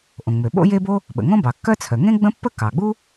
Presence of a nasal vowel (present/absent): present